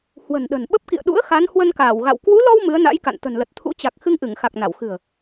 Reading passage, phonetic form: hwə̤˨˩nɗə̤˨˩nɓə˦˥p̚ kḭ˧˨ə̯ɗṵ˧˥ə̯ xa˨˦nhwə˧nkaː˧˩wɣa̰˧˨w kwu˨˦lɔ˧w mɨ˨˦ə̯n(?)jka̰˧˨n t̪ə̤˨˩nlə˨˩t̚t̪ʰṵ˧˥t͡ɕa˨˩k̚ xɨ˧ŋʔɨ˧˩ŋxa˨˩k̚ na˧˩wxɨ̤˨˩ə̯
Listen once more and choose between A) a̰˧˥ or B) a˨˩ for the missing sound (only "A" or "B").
A